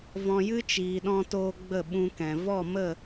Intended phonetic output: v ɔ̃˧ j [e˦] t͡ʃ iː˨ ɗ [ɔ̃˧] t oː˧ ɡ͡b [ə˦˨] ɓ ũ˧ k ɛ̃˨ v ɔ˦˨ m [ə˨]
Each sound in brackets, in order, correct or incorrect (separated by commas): incorrect, correct, correct, incorrect